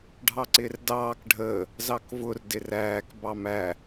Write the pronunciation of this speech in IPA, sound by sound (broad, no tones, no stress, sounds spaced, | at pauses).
ɖʱ ɑ ǀ ɪː r d ɑː k ɖʱ əː | z ɑ k v ʊ r d ɪ r æː k b ɑ m æ